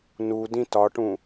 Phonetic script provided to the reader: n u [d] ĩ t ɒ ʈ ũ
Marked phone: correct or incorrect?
correct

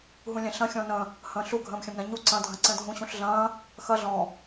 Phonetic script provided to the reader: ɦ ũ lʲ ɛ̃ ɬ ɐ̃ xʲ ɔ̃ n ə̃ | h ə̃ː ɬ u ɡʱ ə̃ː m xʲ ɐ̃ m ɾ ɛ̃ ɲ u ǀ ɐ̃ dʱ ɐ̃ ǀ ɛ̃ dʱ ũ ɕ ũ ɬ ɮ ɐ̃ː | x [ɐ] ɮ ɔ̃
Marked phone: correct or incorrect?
correct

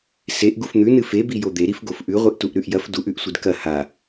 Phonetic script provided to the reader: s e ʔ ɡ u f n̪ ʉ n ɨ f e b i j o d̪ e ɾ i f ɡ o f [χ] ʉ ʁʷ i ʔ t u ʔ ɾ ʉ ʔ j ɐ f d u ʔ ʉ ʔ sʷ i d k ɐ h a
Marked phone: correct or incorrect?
incorrect: ʔ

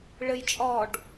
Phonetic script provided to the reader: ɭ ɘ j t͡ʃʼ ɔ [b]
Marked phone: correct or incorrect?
incorrect: ɖ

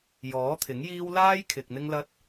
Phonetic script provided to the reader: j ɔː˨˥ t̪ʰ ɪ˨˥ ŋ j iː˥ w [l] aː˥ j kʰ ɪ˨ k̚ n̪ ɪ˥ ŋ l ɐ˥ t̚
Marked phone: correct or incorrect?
correct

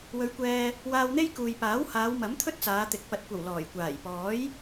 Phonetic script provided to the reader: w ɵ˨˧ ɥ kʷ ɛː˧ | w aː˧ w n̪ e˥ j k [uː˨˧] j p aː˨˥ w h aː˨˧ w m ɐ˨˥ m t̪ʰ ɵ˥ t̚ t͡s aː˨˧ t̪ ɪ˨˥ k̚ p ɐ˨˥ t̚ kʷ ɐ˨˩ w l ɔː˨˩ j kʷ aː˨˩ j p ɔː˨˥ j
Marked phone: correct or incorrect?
incorrect: uː˨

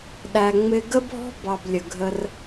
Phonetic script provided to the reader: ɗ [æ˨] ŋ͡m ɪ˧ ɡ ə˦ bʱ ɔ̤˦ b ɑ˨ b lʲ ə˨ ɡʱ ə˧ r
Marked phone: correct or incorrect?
correct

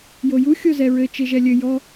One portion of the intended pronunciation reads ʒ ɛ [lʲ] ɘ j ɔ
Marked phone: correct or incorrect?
correct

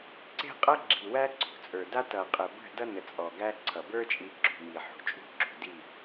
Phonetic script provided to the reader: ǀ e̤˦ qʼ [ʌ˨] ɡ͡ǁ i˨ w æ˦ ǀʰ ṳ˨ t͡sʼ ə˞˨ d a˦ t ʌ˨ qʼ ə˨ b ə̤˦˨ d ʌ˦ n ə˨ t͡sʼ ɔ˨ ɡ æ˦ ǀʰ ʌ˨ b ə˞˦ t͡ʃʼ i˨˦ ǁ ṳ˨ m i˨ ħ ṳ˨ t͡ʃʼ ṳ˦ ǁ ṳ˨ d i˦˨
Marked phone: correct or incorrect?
incorrect: ʌ˦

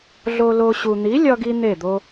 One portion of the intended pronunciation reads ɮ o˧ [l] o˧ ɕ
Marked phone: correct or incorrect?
correct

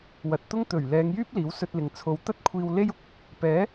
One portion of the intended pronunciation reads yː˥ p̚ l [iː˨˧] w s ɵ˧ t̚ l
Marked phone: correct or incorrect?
incorrect: iː˨˥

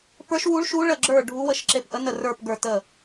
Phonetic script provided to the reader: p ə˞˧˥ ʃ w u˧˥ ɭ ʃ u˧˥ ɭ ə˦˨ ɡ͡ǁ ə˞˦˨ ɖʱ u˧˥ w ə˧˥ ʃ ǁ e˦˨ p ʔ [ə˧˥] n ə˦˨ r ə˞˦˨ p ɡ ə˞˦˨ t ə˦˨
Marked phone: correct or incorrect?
correct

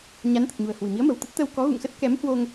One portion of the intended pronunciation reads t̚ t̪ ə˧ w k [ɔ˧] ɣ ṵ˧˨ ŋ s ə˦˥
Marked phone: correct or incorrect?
incorrect: ɔ˨˦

